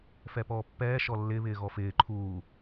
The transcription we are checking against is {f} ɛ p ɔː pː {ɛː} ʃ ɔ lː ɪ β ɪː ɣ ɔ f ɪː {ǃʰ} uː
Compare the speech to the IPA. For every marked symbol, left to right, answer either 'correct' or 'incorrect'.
correct, correct, correct

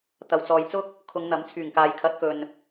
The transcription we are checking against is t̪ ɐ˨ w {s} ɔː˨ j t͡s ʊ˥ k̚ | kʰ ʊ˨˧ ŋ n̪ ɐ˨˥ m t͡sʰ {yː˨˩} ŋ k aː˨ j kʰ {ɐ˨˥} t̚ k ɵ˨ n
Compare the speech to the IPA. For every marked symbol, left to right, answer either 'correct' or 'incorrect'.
incorrect: t͡s, correct, correct

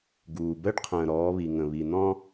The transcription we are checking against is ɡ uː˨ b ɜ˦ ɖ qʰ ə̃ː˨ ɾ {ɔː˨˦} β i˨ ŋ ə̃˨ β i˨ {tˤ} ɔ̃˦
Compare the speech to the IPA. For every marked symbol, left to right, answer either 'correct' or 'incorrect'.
correct, incorrect: n̪

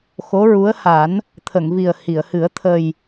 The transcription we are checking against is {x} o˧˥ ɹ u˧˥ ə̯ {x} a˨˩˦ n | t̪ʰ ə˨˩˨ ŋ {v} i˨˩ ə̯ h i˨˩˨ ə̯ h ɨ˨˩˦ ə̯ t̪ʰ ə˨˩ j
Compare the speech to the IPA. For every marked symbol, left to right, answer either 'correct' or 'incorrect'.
correct, incorrect: h, correct

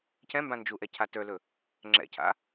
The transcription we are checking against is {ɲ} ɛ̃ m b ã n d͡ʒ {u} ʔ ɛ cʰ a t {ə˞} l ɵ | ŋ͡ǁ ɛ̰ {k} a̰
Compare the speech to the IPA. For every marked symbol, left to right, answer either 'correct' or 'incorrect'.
incorrect: c, correct, correct, incorrect: cʰ

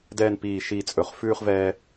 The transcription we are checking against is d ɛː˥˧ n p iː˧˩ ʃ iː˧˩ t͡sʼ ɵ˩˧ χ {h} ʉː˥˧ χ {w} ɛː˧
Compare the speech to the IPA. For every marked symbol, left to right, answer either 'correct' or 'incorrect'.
incorrect: f, incorrect: v

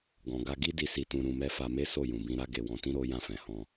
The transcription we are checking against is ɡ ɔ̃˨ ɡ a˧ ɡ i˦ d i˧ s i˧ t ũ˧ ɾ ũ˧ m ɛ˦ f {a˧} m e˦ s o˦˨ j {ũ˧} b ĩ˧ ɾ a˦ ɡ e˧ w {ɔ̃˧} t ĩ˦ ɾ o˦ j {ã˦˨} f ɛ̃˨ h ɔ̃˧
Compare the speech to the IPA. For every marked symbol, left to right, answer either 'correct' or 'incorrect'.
correct, incorrect: ũ˨, correct, correct

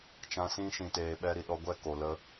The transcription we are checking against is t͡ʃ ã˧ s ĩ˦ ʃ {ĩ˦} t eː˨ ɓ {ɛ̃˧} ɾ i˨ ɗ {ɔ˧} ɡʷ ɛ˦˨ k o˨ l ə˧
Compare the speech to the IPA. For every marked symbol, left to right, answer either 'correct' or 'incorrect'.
incorrect: ĩ˨, incorrect: ɛ˧, correct

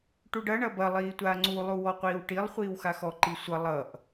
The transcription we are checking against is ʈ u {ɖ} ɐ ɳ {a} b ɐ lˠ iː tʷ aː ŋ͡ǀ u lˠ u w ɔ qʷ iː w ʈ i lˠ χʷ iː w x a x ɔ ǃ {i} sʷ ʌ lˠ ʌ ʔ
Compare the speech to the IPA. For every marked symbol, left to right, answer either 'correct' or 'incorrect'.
correct, incorrect: ɐ, correct

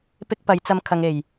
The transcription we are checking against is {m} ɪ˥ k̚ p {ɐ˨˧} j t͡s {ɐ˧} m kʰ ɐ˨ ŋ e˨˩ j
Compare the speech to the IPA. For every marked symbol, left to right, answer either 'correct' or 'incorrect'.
incorrect: p, correct, correct

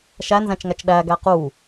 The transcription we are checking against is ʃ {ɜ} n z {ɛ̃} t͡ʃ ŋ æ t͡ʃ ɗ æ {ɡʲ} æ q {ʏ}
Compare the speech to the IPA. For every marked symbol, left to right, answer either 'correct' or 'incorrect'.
incorrect: æ, incorrect: æ̃, incorrect: ɡ, incorrect: u

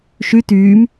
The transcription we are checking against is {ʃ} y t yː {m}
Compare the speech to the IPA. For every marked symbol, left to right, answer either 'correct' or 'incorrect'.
correct, correct

